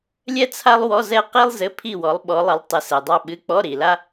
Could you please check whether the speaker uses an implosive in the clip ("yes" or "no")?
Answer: yes